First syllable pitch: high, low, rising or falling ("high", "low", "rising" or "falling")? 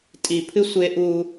low